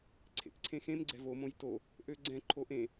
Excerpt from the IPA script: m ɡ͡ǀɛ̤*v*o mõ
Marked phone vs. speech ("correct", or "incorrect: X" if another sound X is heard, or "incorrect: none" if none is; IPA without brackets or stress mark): correct